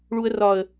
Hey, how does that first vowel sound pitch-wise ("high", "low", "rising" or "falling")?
low